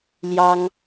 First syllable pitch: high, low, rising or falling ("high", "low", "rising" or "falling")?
high